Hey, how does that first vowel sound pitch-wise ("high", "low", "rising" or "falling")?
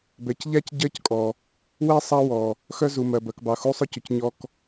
low